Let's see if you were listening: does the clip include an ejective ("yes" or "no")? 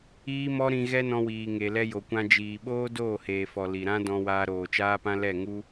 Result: no